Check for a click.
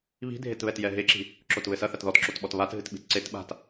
present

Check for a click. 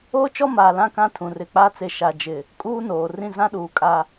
absent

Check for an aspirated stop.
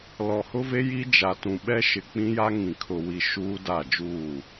present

